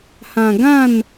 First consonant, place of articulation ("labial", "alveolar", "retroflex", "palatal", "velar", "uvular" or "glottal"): glottal